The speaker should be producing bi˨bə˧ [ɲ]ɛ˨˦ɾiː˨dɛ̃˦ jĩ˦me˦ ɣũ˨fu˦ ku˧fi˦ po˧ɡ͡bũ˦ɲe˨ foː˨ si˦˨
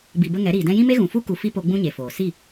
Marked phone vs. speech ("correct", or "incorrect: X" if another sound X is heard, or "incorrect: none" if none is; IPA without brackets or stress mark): incorrect: ŋ